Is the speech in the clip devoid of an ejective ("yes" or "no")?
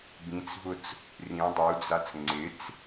yes